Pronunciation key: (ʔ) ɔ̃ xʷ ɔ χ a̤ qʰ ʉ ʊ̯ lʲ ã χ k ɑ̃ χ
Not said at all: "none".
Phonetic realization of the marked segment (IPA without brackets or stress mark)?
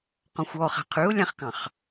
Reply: q